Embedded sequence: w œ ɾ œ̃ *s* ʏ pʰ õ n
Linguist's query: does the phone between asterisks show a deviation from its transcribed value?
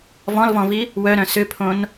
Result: no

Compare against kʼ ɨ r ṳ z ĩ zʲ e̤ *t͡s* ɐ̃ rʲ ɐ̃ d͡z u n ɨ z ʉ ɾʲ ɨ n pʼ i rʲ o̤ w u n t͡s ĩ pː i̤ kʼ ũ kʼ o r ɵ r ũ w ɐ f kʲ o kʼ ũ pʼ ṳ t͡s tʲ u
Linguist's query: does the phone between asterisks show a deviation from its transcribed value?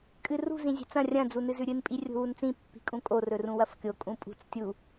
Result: no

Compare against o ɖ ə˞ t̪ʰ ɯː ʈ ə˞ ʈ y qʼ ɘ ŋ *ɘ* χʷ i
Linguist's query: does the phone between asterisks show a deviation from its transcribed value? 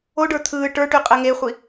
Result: yes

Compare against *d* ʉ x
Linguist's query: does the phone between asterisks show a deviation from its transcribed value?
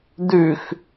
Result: no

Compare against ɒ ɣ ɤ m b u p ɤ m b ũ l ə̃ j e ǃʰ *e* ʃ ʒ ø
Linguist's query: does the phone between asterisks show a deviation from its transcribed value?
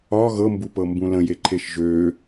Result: no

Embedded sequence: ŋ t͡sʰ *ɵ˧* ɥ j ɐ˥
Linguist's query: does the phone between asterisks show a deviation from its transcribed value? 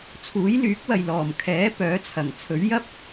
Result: yes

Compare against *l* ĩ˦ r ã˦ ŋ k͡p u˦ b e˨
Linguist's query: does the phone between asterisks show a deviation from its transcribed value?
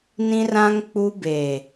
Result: yes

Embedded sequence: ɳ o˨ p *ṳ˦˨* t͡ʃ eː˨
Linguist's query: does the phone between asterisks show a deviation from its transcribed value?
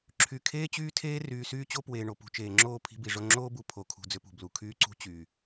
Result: yes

